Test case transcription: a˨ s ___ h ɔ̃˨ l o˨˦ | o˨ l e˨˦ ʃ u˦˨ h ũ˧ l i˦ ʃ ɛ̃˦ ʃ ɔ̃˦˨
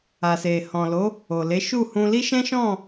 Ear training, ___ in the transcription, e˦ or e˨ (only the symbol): e˨